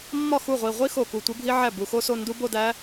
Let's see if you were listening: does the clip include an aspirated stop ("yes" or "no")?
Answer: no